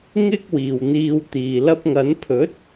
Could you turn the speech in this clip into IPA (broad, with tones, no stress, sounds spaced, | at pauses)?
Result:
ŋ ɪ˥ k̚ w iː˨ w n̪ iː˧ w t̪ iː˨ l ɐ˧ p̚ ŋ ɐ˨˧ n pʰ ɵ˨˥ t̚